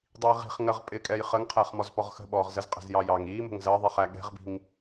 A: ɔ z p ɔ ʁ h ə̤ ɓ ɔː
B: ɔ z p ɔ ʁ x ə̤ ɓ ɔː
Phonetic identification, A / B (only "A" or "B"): B